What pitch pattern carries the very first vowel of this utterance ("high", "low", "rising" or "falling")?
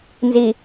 low